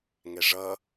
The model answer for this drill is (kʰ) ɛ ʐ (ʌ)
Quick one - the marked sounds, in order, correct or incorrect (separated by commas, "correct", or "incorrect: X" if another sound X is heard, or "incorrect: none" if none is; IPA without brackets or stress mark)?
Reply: incorrect: ŋ, correct